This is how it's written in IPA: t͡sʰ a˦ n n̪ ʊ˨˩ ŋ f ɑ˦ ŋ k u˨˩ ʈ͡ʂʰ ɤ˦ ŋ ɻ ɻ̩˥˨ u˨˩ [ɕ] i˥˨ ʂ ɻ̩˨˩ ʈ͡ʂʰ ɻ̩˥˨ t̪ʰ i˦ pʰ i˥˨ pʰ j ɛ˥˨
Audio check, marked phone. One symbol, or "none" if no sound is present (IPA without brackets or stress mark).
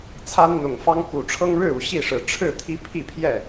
ɕ